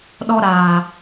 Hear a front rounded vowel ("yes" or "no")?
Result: no